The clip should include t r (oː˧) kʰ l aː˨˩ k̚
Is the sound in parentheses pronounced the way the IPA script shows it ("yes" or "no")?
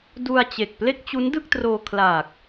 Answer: yes